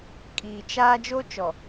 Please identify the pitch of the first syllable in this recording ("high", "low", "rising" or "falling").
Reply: low